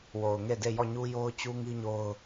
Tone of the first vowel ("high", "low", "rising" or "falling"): low